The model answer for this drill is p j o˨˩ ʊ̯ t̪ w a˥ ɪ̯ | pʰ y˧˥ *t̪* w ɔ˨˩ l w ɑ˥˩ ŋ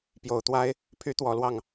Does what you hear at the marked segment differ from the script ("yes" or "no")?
no